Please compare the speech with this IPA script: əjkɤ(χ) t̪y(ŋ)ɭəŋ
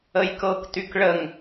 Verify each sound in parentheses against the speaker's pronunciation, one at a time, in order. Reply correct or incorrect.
incorrect: k, incorrect: k

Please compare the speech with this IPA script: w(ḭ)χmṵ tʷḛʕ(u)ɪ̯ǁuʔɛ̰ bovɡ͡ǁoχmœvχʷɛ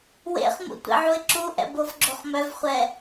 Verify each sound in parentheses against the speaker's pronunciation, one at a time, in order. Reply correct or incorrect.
incorrect: ḛ, correct

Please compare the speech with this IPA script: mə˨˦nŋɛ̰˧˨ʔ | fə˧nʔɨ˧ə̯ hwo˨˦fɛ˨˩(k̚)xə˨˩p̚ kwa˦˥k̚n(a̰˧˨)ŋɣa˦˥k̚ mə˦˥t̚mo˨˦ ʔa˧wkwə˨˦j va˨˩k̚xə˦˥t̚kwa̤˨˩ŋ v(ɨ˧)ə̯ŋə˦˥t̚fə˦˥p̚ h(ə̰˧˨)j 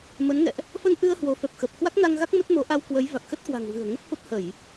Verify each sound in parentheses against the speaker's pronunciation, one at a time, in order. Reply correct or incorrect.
incorrect: p̚, incorrect: a˧, incorrect: ɨ̤˨˩, incorrect: ə˧˩˨

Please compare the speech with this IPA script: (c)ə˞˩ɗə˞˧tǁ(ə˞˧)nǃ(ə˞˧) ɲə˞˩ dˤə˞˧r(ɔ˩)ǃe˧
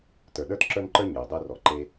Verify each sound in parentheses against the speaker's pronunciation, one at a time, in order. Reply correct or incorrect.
incorrect: t, correct, correct, correct

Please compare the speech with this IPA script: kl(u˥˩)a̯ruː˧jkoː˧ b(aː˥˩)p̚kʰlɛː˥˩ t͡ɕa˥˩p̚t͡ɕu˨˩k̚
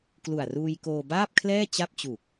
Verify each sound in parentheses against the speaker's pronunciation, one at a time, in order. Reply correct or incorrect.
incorrect: u˨˩, correct

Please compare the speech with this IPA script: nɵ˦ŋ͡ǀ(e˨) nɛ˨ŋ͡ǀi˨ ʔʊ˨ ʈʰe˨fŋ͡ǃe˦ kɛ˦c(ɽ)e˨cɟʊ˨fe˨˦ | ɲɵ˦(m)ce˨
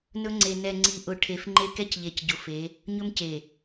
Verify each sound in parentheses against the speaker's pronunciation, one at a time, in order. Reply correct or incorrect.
correct, incorrect: ʎ, correct

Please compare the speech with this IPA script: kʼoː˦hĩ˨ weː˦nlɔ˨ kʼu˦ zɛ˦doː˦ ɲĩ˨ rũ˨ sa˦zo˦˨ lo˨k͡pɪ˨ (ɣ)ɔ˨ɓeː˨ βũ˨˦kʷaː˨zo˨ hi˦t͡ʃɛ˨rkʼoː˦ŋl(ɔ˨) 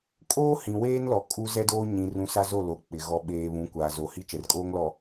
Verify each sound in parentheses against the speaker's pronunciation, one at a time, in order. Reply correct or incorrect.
correct, correct

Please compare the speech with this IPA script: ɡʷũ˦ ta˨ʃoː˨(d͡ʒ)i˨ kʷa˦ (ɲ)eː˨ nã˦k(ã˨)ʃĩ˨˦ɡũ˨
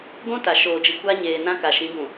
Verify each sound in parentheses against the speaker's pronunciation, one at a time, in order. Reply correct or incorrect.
correct, correct, incorrect: a˨

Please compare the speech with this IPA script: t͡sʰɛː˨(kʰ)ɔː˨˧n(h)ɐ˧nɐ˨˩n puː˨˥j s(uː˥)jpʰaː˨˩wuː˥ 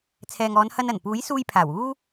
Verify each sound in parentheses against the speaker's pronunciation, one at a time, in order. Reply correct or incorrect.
incorrect: ŋ, correct, incorrect: uː˧

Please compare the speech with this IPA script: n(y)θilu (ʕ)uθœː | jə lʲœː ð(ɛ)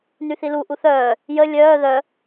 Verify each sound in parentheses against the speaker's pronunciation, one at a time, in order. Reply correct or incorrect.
correct, incorrect: ʔ, incorrect: œ

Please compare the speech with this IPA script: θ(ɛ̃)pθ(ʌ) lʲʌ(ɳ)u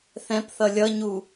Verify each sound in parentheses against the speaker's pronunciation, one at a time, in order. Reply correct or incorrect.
correct, correct, incorrect: ɲ

